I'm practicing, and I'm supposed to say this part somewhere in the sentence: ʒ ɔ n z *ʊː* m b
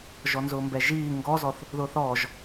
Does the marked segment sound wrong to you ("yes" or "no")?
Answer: no